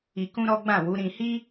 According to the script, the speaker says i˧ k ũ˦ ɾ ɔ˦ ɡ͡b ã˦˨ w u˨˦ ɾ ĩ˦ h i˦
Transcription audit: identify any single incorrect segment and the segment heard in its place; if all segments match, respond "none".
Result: ĩ˦ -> ĩ˧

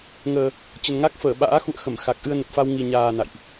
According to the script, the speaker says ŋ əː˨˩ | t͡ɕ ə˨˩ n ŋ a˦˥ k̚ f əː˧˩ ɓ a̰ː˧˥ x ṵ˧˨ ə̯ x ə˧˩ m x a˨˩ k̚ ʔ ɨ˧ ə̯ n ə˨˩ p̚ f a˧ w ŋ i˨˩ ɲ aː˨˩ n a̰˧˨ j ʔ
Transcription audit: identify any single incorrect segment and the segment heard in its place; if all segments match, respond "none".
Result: none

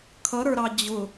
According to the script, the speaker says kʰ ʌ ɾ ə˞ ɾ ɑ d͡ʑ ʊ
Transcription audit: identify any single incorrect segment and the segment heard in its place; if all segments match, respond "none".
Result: none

